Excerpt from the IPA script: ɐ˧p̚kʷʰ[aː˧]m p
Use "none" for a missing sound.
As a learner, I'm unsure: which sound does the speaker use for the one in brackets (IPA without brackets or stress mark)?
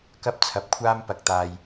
aː˥